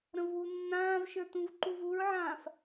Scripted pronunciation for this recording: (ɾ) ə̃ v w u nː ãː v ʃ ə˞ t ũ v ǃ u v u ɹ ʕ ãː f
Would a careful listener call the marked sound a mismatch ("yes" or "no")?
no